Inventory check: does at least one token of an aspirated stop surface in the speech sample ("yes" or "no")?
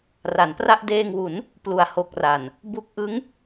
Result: no